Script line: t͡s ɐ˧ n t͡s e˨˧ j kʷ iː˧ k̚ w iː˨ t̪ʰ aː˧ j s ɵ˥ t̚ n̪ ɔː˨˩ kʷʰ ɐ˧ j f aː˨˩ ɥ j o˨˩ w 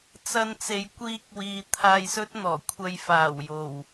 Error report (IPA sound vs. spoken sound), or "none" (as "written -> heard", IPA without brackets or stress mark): ɥ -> w